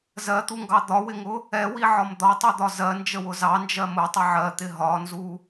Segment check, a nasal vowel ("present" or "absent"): absent